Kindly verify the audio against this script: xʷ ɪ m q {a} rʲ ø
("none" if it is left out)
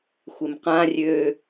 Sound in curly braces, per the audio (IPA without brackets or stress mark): ã